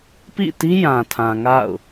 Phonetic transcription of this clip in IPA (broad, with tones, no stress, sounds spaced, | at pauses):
p ḭ˦˨ t i˦ j ã˨ tʰ ã˨ ŋ a̰˦˨ ʊ̯